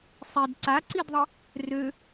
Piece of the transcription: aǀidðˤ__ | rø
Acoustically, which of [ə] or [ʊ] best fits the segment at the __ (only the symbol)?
ə